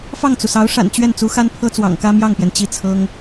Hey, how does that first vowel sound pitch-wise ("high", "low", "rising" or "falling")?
falling